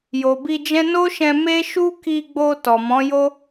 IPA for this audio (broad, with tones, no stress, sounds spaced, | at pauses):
j o˨ b i˧ d͡ʒ ɛ̃˦ n o˦ ʃ ɛ̃˧ m e˦ ʃ u˦ k i˧ ɡ͡b o˧ t ɔ˨ m ɔ̃˨˦ j o˦